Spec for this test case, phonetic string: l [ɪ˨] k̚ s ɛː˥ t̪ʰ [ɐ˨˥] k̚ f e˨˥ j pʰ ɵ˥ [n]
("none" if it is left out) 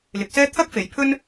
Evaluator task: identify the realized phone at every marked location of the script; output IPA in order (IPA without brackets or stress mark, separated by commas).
ɪ˨˥, ɐ˥, n